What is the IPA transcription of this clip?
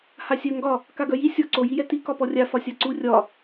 h a sʲ œ ŋ ɡ ɒ | k a ɡ œ j i sʲ ɔ ǀ o j i j ɛ t i k ɒ p ɔ rʲ a f ɒ sʲ a ǀ u rʲ ɒ

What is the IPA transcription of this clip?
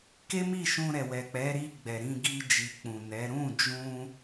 k e˦ m i˦˨ ʃ ũ˧ ɾ ɛ˨ w ɛ˨ k͡p ɛ˨˦ ɾ i˧ ɡ͡b ɛ˨ ɾ ĩ˧ ɡ i˧ d͡ʒ i˨ k͡p ũ˨ n ɛ˨˦ ɾ ũ˦˨ d͡ʒ ũ˧

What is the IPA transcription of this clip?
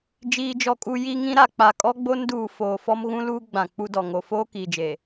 d͡ʒ iː˨ d͡ʒ ɔ˨ kʼ u˨ j i˨ ŋ ĩ˦ ɾ a˨ k͡p a˨ kʼ ɔ˦ ɡ͡b o˦ n d uː˨ f oː˨ f ɔ˦ m ɣ ũ˦ l uː˦ ɡ͡b ã˨ k͡p u˦ d ɔ˨ ŋ o˨ f oː˦ k iː˨ d͡ʒ e˨

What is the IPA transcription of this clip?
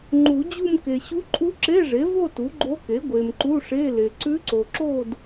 ŋ͡ǃ u˨˩˦ d͡ʑ u˥˧ m k e˨ ɕ u˧˥ ǃʼ u˧˥ ǁ e˧˥˧ ʐ e˩˥ v o˥˧ t u˩˥ ɡ͡ǃ o˧˥ k e˩˥ ɡʷ e˨ m ǃ u˧˥˧ ʂ e˧˥˧ l e˨ ǀ ʉ˧˥ ǀ o˨ ǁ o˥˧ d

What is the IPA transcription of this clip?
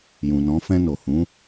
j ũ˨ n ɔ̃˨˦ f ɛ̃˧ n o˨ h ũ˨˦

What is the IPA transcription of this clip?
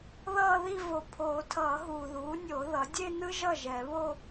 ð ʌː˥˧ ð i˥˧ v o˨ pʰ oː˨˩˦ tʰ ʌː˨˩˦ ɦ uː˨ ð uː˩˥ nʲ o˨˩˦ ð ʌ˩˥ dʲ e˥˧ n ɯ˥ ʒ ʌ˥˩ ʒ ɛ˨˩˦ β o˥˧

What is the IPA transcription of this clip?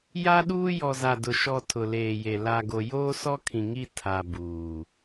j a˦ ɗ uː˦ j ɔ˨ z a˨ d ʊ˨ ʃ ɔ˨ tʰ ʊ˨ l eː˨ j e˨ l a˨ ɡ o˨ j oː˦ s ɔ˦ kʰ ĩ˨ ŋ i˦˨ tʰ a˨ b uː˨

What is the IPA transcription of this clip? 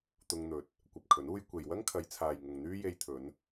t̪ ʊ˧ ŋ n̪ ɵ˨ t̚ | kʷ ɐ˧ p̚ kʰ ɵ˨˥ n uː˥ j kʷ e˨ j w ɐ˥ ŋ kʰ ɐ˨˧ j t͡sʰ aː˨ j ŋ ʊ˨ ŋ n̪ yː˥ j e˧ j t̪ʰ ɵ˨˧ n

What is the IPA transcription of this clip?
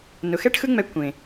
n ʊ˨ x ɛ˦ ʈ x ɯ˦ ŋ͡m ɛ˧ kʷ ẽ˨

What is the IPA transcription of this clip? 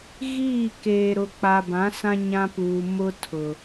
ɣ iː˦˨ k eː˨ ɾ ʊ˨ k͡p a˨ b ã˨˦ s ã˦ ɲ ã˦ p uː˨ m ʊ˦ tʰ ʊ˨

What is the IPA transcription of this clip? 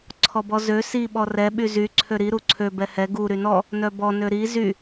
ǀʰ ɔ b ɔ z ø s i ɓ ɔ r ɛ ɓ y z y ǀʰ ø ɾ i ɾ u ǀʰ ø b ɛ h ɛ ɡ u ɾ y n ɔ | n œ b ɔ n ø ɾ i z y

